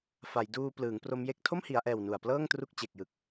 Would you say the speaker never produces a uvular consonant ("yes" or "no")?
yes